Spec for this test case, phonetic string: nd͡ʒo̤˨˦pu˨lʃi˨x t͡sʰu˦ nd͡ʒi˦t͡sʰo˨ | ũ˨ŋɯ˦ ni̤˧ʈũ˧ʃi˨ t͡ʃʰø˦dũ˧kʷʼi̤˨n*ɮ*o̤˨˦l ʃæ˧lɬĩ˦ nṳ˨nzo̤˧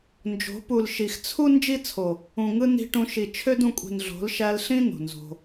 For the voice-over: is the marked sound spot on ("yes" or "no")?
yes